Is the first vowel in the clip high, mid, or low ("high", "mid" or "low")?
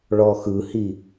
mid